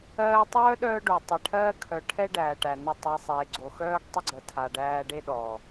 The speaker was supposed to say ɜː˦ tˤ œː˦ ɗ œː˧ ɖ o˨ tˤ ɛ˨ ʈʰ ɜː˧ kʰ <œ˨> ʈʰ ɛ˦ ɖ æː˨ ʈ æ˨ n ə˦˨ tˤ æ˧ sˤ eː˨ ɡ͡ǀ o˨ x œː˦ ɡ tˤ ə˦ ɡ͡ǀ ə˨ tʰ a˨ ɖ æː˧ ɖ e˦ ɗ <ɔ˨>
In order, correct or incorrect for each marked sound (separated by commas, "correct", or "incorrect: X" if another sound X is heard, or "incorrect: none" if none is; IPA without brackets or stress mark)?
correct, correct